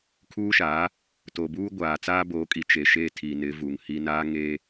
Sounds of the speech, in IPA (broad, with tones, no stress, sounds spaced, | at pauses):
kʰ uː˦ ʃ aː˨˦ | t o˨ b uː˦ ɡʷ aː˨ t͡s aː˦ b o˨˦ kʼ i˨ t͡ʃ e˨ ʃ e˦˨ tʰ i˨ n ɪ˨˦ v u˨ ŋ h i˦ n aː˦ ŋ eː˦